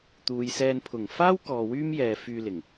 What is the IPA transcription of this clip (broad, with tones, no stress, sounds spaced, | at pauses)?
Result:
t̪ uː˨ j s ɛː˧ n pʰ ʊ˨˩ ŋ f aː˥ w k ɔː˨ w yː˥ m j ɛː˨ f yː˧ l ɪ˨˩ ŋ